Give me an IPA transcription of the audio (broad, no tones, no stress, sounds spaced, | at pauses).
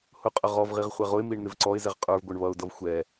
h ʊ qʼ ə ʁ ɔ v ʁ i ʁ χʷ ɛ ʁ ʊ ɪ̯ m i ɳ n̪ ɪ v ǀ ɔ ɪ̯ z ɛ ʁ qʼ ə˞ v ɡʷ ə˞ ɳ β ʌ ʊ̯ d ʌ v xʷ ɛ